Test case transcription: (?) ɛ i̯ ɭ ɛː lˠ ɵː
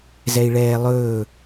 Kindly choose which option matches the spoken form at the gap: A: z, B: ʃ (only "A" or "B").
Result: A